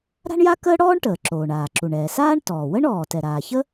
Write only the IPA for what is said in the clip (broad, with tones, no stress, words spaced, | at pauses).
ɾa̤˥ɳja˥ kəː˥ɽɔː˥ɳ ʈəː˩ǁoː˩ɳaː˩ ǁu˩ɳɛː˩saː˥ɳ tɔː˩ wə˥ɳɔː˩ tɛ˩ɾaː˩ çə˥